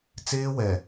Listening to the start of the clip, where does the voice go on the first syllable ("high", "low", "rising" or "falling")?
high